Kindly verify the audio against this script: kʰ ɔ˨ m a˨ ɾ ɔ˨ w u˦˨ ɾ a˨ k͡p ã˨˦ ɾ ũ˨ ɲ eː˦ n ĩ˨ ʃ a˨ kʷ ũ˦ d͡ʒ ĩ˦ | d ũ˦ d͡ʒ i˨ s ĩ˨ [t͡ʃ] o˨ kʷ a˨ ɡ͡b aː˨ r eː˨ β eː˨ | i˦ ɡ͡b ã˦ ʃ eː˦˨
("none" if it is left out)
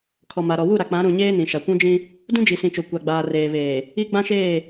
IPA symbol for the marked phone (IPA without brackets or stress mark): t͡ʃ